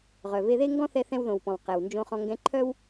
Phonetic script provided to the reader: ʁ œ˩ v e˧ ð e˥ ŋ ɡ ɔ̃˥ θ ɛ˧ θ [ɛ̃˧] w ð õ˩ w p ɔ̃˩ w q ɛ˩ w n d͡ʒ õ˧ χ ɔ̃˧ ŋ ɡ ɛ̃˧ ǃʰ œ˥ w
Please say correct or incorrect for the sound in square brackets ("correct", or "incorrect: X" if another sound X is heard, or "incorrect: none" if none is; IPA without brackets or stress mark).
correct